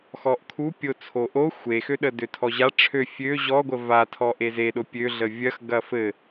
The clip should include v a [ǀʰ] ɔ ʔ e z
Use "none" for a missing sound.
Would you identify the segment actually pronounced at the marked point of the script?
tʰ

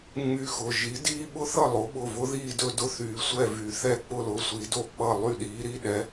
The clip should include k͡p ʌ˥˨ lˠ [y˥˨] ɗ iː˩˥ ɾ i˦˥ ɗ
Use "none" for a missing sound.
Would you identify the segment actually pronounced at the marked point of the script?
y˥˨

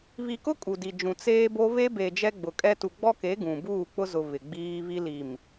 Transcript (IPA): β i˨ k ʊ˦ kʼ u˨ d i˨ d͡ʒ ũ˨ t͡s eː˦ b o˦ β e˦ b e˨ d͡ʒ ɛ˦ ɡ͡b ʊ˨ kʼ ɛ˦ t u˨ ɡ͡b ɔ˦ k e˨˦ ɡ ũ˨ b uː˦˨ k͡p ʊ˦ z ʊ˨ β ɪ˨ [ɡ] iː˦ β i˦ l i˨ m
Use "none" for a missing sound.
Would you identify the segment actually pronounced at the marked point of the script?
ɡ͡b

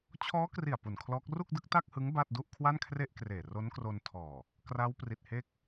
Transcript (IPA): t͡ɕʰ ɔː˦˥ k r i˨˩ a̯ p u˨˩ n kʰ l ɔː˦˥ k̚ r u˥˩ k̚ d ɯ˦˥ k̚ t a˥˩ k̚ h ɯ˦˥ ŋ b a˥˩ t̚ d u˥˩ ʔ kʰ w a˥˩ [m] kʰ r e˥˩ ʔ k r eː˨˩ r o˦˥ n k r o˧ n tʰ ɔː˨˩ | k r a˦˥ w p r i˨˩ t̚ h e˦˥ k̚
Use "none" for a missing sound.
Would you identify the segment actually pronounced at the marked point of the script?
n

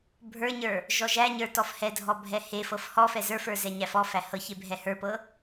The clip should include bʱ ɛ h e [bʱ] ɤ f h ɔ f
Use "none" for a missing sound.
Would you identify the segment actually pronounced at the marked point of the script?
f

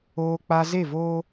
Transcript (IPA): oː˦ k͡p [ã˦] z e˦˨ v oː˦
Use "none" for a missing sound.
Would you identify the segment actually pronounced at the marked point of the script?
a˦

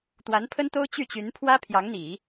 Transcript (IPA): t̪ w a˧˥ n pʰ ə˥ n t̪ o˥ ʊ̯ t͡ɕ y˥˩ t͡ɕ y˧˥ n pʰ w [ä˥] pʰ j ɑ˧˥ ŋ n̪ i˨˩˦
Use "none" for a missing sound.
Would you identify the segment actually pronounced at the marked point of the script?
ä˥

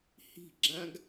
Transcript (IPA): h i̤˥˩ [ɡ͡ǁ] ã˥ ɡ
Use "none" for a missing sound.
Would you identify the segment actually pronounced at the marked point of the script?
ɡ͡ǁ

